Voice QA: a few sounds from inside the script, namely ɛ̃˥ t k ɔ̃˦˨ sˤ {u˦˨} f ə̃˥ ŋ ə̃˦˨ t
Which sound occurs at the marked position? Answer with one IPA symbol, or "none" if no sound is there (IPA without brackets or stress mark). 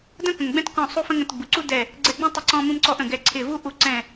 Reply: u˥